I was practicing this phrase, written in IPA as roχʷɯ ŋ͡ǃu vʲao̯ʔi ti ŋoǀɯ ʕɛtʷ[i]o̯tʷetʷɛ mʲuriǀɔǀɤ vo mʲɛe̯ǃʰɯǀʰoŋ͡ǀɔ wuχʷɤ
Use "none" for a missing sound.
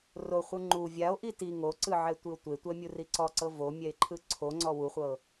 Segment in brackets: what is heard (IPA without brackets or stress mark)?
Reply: i